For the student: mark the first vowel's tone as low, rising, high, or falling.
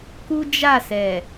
high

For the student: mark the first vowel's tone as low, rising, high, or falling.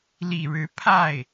low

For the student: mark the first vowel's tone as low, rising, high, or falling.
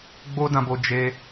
high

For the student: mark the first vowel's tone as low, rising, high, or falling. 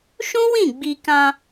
high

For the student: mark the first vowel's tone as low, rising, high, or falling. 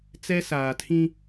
high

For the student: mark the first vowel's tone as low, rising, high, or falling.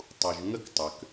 low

